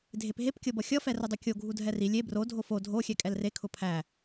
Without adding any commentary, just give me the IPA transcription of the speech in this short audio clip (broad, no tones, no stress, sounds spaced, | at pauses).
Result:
dʱ e p ɦ e p kʲ ɤ b ʌ xʲ ʌ f ɛ r ʊ dˤ u kʲ o ɡʱ u dʱ ɛ r i lʲ e b r o dʱ o f o dʱ o xʲ ɛ kʼ ɛ l r e kʰ ʊ pʰ æ